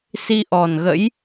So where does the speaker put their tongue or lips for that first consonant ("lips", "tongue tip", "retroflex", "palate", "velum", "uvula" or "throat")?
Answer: tongue tip